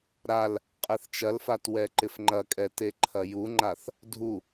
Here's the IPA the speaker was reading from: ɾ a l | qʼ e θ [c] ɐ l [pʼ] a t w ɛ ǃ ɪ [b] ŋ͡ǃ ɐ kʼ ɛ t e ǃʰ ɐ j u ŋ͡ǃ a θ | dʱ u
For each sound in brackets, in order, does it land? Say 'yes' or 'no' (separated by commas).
no, no, no